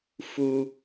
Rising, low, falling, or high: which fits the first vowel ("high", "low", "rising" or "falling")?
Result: high